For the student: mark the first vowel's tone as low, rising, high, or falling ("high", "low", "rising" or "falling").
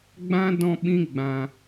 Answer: high